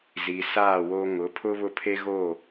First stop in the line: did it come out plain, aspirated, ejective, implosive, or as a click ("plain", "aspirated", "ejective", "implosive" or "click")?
aspirated